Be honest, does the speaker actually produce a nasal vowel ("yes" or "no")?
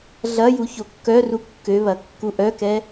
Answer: no